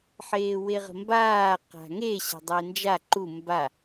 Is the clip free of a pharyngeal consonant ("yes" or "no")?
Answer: no